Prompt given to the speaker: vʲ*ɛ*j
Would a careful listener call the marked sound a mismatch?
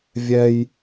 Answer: no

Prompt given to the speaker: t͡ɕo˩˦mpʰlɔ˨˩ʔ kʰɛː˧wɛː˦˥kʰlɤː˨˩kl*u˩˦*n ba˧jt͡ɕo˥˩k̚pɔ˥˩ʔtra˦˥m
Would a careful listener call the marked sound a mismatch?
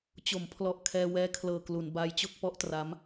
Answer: no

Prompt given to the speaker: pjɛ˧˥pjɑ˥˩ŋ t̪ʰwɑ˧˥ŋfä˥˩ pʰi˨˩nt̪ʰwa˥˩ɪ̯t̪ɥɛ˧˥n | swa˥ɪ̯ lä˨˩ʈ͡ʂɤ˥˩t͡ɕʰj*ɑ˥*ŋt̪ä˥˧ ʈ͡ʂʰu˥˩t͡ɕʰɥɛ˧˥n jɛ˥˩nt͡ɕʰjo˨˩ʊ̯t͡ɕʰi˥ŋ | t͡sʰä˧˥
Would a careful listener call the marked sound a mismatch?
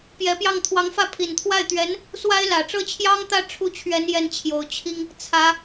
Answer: no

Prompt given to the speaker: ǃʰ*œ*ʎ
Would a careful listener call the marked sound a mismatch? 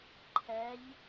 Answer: yes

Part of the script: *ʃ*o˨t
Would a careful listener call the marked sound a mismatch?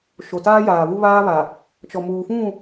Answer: no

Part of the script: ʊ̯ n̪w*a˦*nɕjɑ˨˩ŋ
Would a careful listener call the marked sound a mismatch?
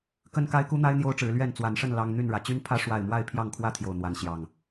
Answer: yes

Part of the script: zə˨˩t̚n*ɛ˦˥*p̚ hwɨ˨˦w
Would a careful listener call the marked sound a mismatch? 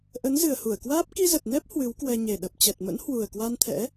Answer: no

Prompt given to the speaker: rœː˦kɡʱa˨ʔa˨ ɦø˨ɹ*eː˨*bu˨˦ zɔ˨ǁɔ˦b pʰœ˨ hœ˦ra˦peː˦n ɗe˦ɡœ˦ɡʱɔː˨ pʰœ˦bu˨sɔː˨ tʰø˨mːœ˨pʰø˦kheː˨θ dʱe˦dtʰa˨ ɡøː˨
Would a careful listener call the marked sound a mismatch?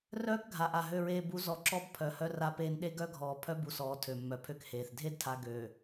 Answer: no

